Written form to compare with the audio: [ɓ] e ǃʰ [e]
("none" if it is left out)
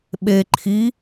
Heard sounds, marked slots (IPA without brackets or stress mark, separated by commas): ɓ, i